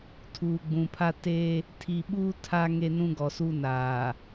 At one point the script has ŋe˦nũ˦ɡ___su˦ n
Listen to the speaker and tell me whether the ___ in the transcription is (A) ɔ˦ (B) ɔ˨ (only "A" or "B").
B